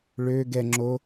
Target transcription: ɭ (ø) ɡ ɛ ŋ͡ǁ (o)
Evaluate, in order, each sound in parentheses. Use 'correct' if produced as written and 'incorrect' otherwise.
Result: correct, correct

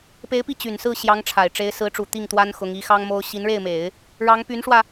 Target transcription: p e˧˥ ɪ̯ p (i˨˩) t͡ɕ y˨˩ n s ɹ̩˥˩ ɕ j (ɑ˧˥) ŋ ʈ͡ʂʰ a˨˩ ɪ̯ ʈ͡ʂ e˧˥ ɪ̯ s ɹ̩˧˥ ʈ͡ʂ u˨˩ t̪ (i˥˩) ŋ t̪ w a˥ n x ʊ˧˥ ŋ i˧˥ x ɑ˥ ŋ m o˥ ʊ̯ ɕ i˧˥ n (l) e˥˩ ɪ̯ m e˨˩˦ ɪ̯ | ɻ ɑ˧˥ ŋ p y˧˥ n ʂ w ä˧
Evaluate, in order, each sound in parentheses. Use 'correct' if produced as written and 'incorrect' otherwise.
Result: incorrect: i˥˩, correct, correct, incorrect: ɻ

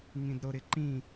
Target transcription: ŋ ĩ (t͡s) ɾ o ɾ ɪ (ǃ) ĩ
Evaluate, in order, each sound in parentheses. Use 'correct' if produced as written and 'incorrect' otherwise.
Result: incorrect: d, correct

